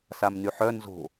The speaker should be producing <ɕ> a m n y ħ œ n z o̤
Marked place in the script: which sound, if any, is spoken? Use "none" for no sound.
s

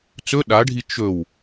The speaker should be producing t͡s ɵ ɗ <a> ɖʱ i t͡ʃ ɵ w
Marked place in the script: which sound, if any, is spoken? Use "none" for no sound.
a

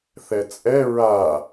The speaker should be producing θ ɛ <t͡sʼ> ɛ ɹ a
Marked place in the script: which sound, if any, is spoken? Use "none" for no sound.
t͡sʼ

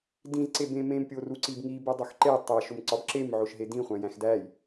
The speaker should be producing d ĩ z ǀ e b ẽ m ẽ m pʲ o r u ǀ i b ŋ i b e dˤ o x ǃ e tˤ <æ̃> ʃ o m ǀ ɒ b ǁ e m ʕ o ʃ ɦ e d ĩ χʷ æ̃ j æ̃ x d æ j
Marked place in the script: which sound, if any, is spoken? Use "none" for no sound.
æ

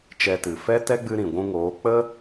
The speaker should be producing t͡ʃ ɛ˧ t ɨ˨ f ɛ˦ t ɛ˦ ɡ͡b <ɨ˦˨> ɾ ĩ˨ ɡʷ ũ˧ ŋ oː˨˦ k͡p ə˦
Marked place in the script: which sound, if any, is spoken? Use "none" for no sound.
ɨ˧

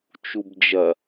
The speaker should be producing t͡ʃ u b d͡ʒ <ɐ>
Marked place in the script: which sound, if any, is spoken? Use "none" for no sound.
ɐ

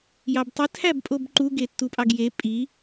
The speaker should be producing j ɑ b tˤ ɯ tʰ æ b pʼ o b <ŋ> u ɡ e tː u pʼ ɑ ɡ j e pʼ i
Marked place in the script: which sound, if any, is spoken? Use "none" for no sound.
ǃ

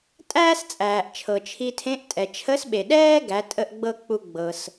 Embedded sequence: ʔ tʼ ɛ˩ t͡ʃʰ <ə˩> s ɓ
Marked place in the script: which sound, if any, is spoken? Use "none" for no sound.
ə˧˥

